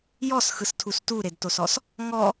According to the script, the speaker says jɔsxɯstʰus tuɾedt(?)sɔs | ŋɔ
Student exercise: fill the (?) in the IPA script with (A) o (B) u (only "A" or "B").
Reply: A